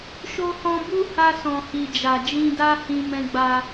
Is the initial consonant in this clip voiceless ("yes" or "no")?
yes